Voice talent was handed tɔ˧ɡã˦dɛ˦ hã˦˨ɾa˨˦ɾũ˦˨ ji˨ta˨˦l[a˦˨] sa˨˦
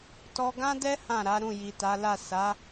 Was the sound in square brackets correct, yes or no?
yes